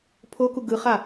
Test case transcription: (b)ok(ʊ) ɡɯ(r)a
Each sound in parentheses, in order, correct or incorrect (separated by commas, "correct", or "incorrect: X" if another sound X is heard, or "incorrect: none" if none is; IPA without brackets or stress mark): incorrect: pʰ, incorrect: u, incorrect: χ